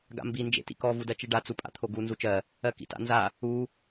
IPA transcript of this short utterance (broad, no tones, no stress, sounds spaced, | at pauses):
ɡ a̰ m b i n d͡ʒ ḛ t ḭ k ɔ v u d ɜ t͡ʃ i ɖ a t͡s u pʼ a̰ t̪ʰ o ɡ u n z u t͡ʃ ɜ | ɜ k ḭ t a̰ n z a | u